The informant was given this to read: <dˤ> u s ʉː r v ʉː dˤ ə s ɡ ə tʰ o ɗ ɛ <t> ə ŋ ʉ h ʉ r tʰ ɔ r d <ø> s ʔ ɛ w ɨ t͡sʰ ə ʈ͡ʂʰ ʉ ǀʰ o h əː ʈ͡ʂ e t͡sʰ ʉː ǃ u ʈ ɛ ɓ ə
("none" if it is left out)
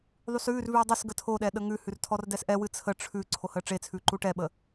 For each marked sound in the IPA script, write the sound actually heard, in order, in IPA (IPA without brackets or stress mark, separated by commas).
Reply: ðˤ, ɗ, ɛ